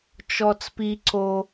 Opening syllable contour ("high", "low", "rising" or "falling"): high